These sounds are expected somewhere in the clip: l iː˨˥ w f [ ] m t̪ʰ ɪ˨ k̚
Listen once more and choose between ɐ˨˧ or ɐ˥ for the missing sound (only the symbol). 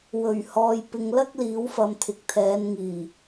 ɐ˨˧